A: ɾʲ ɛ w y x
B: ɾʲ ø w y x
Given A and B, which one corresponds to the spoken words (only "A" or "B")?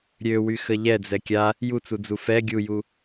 B